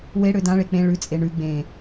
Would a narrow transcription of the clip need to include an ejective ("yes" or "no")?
yes